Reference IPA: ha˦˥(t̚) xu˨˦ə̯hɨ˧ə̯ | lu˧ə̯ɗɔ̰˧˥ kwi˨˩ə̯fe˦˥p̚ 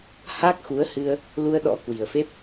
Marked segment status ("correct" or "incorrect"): incorrect